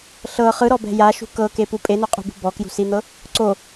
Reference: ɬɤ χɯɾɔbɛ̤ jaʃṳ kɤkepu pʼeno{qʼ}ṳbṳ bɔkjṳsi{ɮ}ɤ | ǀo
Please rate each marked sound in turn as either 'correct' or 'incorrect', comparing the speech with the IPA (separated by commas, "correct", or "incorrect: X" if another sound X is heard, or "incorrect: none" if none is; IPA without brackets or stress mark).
correct, incorrect: n̪